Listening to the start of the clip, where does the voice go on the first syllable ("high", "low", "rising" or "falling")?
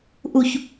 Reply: low